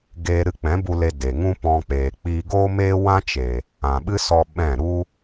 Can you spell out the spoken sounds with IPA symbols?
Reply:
ɡ eː˧ ɾ ɨ˧ k͡p ɛ̃˨˦ b u˧ l e˧ d e˨ ŋ ũ˦ p ɔ̃˧ k͡p eː˨ k͡p iː˧ ɡ oː˦ m eː˦ w ã˦ t͡ʃ e˨ | ã˨ ɓ ɨ˦ s ɔ˧ ɓ ɛ̃˦˨ ɾ u˦

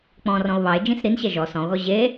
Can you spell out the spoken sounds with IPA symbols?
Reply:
k͡p ɔ̃ r ɔ̃ o̯ β ɑ e̯ d͡ʒ ĩ s ɾ i n ɕ ɛ ʒ ɔ s ɔ̃ o̯ ɣ ɔ ʑ e

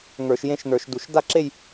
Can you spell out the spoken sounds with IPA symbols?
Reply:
ŋ ə˞˧˩˧ ʃ j ẽ˥˧ ʃ n ə˞˧˩˧ ʃ d u˧˩˧ ʃ d a˥˧ ǁ e˥˧ j

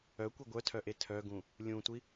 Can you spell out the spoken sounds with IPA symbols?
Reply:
œ kʷ e ɡʷ œ tʰ œ ʔ e tʰ œ ɡ ũ | lʲ ũ tʷ i

